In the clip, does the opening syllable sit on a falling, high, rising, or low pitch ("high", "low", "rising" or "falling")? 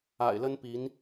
low